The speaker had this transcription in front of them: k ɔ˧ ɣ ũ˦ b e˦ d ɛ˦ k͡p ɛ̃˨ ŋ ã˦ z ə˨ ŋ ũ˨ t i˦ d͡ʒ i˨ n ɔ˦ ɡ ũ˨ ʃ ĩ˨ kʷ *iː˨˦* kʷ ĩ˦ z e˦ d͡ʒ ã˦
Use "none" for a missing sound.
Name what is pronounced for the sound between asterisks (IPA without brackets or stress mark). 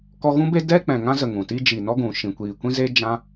iː˨